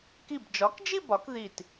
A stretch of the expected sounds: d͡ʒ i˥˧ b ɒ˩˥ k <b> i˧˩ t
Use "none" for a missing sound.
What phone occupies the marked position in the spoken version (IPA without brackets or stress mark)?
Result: ð